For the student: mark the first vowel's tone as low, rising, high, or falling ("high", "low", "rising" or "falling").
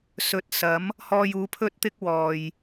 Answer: low